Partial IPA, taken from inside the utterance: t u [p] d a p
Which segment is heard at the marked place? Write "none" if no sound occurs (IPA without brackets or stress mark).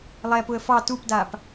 p